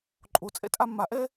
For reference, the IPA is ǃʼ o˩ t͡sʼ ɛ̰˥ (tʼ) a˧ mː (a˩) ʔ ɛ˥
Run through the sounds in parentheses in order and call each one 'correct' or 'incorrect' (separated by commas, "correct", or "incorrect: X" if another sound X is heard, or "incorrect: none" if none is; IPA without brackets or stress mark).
correct, correct